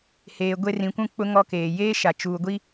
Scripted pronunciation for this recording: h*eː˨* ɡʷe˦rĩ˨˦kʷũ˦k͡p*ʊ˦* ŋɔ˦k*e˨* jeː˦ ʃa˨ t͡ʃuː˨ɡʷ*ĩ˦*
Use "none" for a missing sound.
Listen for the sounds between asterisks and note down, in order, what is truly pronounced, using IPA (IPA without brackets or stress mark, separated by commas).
eː˨, ʊ˦, eː˨, i˦